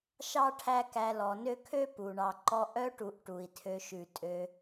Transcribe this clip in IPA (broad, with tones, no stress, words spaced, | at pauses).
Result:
ʃɑ˥ʈʰæ˦ kæ˨lɔ˩nø˦kʰø˥ pu˩ɳɑ˨ǃɔ˦ ʔœ˥ʈu˨ʔ ʈu˩i̯tʰø˨ʃʉ˩ tʼø˨